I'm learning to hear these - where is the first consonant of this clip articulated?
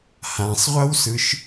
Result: throat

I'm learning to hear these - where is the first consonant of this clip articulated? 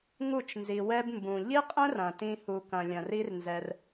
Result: velum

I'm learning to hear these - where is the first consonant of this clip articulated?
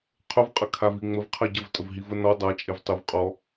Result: uvula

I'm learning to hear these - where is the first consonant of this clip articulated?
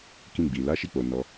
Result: velum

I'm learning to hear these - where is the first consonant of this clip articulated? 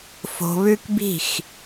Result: lips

